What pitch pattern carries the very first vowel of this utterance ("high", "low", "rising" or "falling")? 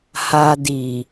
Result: low